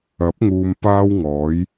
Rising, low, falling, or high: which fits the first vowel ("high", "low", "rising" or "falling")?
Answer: rising